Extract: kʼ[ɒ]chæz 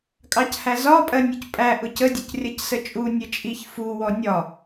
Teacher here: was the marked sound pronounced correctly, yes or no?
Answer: no